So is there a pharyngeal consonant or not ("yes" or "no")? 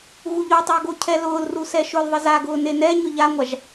no